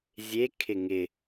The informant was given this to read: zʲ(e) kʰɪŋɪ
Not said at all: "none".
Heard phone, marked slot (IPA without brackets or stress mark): e